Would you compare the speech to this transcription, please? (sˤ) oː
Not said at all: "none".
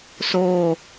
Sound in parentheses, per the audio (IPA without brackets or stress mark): s